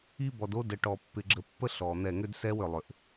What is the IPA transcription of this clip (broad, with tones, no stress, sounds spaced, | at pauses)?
i˦ b ɔ˨ d o˦ d ə˨ ʈ ɔ˨ pː ɪ˨ ɡ͡ǁ ə˨ pː ə˦ ɬ ɔ˨ n̪ ɛ˦˨ ŋ ʏ˦ d s ɛ˦ w ʏ˨ lˠ ʏ˨ ʔ